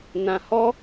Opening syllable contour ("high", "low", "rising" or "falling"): low